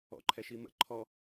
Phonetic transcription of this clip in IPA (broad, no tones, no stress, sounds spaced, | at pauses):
ɔ̰ ǃʰ ɛ ʃ i m ə̰ ǃʰ ɔ